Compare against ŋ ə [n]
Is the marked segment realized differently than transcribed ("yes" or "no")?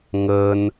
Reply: no